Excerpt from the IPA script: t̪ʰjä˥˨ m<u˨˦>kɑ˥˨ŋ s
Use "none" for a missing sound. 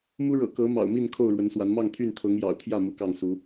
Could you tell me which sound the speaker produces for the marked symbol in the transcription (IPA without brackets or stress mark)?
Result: u˨˦